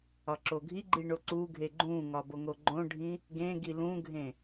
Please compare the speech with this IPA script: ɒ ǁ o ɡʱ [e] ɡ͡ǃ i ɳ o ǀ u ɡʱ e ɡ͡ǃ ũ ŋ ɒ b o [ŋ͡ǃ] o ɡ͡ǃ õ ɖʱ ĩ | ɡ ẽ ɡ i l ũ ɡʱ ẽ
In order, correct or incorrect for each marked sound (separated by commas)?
incorrect, incorrect